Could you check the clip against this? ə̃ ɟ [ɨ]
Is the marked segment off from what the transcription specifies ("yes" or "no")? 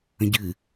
no